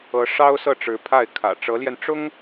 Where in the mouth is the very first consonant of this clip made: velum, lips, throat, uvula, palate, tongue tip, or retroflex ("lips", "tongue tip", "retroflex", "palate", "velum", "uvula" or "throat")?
retroflex